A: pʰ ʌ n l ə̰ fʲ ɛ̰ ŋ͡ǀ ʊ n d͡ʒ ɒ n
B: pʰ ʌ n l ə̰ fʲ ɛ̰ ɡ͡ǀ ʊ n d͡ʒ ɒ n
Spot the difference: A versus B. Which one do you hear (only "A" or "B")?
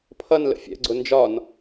B